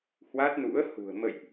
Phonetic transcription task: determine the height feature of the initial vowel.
low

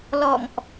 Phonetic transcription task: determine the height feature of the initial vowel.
mid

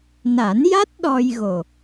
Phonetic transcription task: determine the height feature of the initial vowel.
low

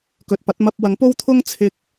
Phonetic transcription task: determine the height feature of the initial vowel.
mid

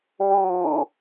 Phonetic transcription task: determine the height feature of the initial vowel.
high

